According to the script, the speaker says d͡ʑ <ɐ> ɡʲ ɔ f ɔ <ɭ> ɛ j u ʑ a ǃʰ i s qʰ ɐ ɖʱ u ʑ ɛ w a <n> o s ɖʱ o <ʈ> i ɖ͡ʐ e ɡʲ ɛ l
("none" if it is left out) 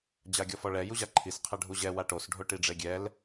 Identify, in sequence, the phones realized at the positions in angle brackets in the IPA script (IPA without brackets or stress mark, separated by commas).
a, ɭ, ʈ, ʈ